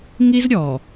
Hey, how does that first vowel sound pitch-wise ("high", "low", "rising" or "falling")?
high